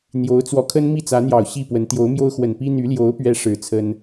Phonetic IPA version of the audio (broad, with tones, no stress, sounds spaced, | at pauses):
n̪ j o˧˥ ʊ̯ t͡s w ɔ˧˥ kʰ ə˥ n m i˥˩ t͡s ä˧˥ n̪ j ɑ˨˩ ʊ̯ ɕ i˥˩ p w ə˧˥ n t̪ j o˧˥ ʊ̯ m j o˥ ʊ̯ x w ə˨˩ n p i˥ n̪ y˧˥ l j o˧˥ ʊ̯ p ɥ ɛ˧˥ ʂ ɻ̩˨˩ t͡sʰ ə˥ n